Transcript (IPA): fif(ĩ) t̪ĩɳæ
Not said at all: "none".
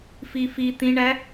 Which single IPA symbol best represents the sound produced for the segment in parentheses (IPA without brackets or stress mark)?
i